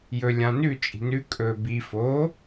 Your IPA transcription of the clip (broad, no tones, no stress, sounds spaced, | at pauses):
j ɵ lʲ ã n ʉ t͡ʃʼ i̤ n ʉ kʼ ɵ b i f o